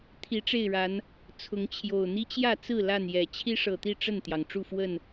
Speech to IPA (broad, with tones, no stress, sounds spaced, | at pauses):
t̪ʰ i˨˦ ʈ͡ʂ e˥˨ ɪ̯ ɻ a˨˦ n | t͡sʰ ʊ˨˦ ŋ t͡ɕʰ j o˨˩ ʊ̯ n̪ i˦ t͡ɕ j ä˥˨ t͡s ɹ̩˥˨ l a˥˨ n j ɛ˨˩ t͡ɕʰ i˦ ʂ ɤ˨˩ t̪ i˥˨ ʈ͡ʂ ə˥˨ n t̪ j ɑ˩ ŋ ʈ͡ʂ u˥˨ f w ə˥˨ n